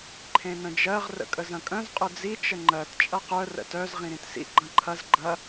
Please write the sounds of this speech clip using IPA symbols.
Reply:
ǃʰẽnə̃d͡ʒɜʁ rə̰kʼəzɐ̃kʼœ̃z qʼʊd͡zi t͡ʃəŋ͡ǃɜt t͡ʃʼɐqœ rə̰tœz ʁĩɾĩtsḭ ɡ͡ǃɐ̃ǃʰɐz ɡ͡ǃɐ

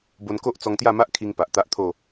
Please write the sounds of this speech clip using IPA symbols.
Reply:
bo˧nko˦ʔt͡sɔ˧ŋ t̪ja˥˧ma˦ʔkʰi˧ŋ pa˨ʔt̪a˦ʔ t̪ʰo˥˧

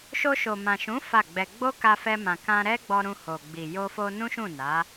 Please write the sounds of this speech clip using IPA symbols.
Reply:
ʃo˧ʃo˨mã˨ʃũ˨˦ fa˦˨ɡ͡bɛ˧ ɡ͡bo˦ka˧fɛ˧ mã˨kã˧ ɾɛ˦ɡ͡bɔ˧ ɾũ˧ho˨ɡ͡bi˨ jo˧fo˧ nũ˦ʃũ˦˨ na˨˦

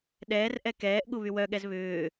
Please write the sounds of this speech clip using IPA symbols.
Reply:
ɗɛːrʔɛ kɛːʔɠu βywœɠɛz βʏː

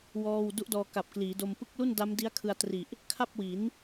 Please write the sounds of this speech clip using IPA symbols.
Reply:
wɔː˥˩w du˦˥ʔdɔː˧ ka˨˩p̚kliː˩˦do˧m pɯ˦˥k̚lu˥˩n da˦˥mdi˦˥a̯ kʰɯ˧a̯tri˨˩ʔ | kʰa˥˩p̚wi˩˦n

